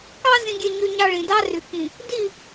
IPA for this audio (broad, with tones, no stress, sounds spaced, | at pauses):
k ɑ˦ z ĩ˦ ɡʲ e˦ ɲ ø˦ ɲ ɑ˦ ɭ ĩ˨ d ɑ˦ r y˨ k ĩ˨ | d i˦˨